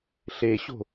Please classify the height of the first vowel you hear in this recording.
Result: mid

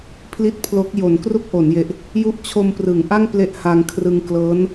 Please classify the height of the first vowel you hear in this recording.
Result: high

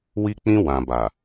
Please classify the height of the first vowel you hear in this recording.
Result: high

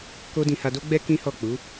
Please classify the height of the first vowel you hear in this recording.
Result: mid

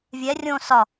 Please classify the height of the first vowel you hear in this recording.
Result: mid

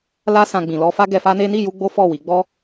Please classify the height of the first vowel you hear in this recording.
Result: low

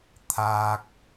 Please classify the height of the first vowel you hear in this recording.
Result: low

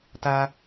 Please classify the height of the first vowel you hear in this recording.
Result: low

